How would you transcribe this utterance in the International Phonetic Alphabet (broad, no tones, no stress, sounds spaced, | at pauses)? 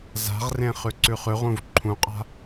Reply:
z a̤ ʁ r ẽ χ ʉ ǀ ʉ χ ʉ ʁ ũ v ǃʰ ũ qʼ a̤